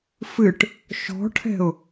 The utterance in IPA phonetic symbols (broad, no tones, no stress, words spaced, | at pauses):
fɨʈ | ʃɔ̤ʈʰɛ̤ʊ̯